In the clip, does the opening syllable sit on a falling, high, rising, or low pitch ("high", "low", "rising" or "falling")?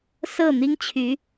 falling